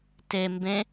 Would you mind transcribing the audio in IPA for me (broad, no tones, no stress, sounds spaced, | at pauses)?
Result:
t e m b ẽ